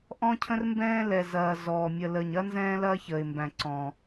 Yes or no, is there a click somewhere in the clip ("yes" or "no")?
yes